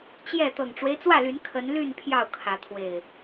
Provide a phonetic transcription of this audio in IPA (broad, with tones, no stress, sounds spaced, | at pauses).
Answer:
t͡ɕ j ɛ˥˨ t̪ ɤ˨˩ ŋ ʈ͡ʂ w e˦ ɪ̯ t͡s w ä˥˨ l y˨˦ n kʰ ə˨˦ n l y˥˨ n pʰ j ɑ˥˨ ʊ̯ kʰ ä˨˦ t̪ʰ w e˨˩ ɪ̯